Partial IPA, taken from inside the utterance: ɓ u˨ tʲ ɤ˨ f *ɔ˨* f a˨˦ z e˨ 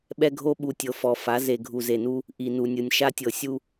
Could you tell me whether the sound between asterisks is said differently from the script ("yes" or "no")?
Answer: no